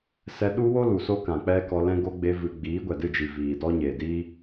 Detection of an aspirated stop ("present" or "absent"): absent